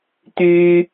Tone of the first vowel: high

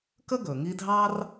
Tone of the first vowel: high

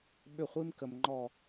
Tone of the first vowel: falling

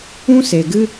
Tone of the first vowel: high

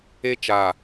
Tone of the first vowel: high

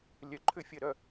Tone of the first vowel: rising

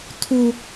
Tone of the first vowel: high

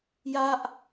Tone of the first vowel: falling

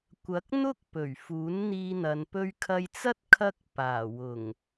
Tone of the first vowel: rising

